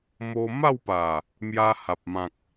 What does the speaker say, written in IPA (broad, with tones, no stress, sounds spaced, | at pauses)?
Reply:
m o˧ m a˥˧ w p a˨˩ | m j a˧ h a˨ p̚ m ã˨ k̚